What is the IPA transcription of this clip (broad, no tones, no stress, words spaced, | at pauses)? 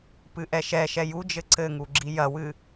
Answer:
pɨʔɛʃɛʃɛ jud͡ʒɘ ǀɘŋu ɡ͡ǁijɐwɨ